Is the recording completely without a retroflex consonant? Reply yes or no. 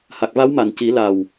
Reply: yes